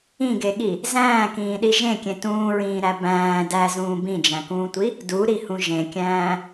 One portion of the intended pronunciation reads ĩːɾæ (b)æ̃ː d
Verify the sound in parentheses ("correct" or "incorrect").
correct